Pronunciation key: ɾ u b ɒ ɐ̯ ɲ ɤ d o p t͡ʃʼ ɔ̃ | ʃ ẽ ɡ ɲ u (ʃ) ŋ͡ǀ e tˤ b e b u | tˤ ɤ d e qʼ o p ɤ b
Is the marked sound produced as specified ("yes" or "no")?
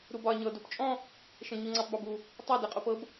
no